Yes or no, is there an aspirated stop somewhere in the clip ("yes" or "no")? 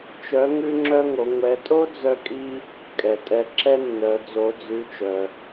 no